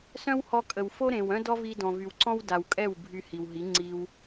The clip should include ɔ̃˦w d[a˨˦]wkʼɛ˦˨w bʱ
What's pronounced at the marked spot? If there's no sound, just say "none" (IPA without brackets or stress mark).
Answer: a˨